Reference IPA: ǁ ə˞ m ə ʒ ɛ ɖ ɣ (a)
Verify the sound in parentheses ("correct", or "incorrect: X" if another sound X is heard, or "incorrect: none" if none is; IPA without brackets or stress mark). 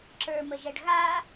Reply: correct